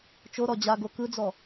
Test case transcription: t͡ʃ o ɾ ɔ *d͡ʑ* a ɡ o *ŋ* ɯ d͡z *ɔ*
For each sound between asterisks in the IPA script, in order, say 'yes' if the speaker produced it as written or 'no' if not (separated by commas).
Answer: yes, no, yes